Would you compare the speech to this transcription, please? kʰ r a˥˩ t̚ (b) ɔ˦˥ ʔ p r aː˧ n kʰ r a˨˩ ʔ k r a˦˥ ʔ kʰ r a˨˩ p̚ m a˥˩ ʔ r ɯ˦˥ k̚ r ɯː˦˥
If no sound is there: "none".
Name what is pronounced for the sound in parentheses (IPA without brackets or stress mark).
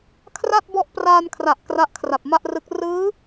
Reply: b